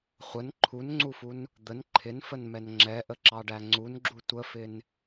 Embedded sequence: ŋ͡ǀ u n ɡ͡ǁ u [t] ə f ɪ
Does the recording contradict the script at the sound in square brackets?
yes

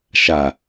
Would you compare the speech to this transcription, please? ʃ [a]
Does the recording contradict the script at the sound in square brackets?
no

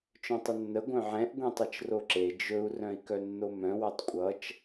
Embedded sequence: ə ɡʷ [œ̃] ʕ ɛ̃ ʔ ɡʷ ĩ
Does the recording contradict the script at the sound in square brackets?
no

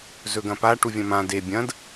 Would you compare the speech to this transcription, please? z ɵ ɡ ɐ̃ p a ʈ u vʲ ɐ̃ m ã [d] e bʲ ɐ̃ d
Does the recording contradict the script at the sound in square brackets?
no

